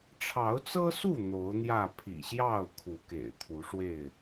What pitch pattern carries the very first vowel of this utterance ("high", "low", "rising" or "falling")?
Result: rising